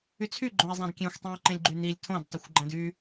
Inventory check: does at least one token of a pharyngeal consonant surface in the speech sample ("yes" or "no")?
no